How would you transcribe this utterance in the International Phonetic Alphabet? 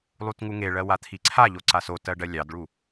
lˠ u t ŋ u ŋ e ɭ ɜ w a t̪ʰ i ǀʰ a ʎ o ǀ a s o t ɜ ɖ ɜ lʲ ɑ d ɭ u

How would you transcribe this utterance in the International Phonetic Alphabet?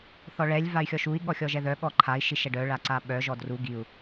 θ ɔ ɭ ɛ lʲ v a y̯ xʲ ɔ ʃ u i̯ ɠ ɔ xʲ ɔ ʒ ɛ ð œ ɠ ɔ ǃʰ a i̯ ʃ i ʃ ɛ ɖ œ ɭ a ǀ a ɓ œ ʒ ɔ d r u ɡ i u̯

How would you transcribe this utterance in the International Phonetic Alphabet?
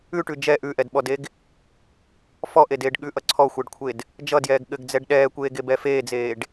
ʉ ʈ ʉ d͡ʒ ɛ ʔ ʉ ʔ ɛ d ɓ ɔ d e ɡ | f ɔ ʔ e d eː ɖ ɠ ʉ ʔ ʌ ǀʰ ɔ xʷ ɛ ɖ kʷʰ e d | d͡ʒ ʌ d j ɛː ɡ ɠ ɘ ɡ d͡z ɛ ɖ ɗ ɛː kʷ eː ɡ e b ɛ f eː d͡z eː ɖ

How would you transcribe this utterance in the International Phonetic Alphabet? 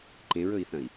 ǃ ẽ ɹ ɵ i̯ θ ɐ̃ i̯

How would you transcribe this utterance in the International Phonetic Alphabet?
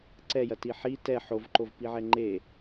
ǀ ɛ j ɐ t i ħ i t ɛ ħ o v ǃ o v p i ʕ ɛ ŋ͡ǃ e

